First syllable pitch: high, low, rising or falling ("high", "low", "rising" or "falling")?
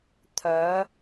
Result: rising